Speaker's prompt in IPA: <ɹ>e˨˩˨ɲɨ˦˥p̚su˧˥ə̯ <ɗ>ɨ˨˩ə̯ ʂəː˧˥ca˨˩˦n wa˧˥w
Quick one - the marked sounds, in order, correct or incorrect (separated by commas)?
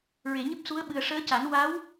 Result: correct, incorrect